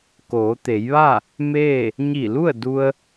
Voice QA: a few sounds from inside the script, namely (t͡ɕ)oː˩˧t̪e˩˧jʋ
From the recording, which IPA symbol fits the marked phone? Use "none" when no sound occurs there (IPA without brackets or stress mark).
k